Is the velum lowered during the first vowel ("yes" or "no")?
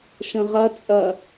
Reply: yes